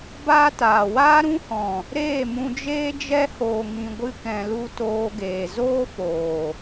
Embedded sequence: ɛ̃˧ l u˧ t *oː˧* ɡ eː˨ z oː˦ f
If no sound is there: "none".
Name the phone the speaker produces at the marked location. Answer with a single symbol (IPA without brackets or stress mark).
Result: oː˧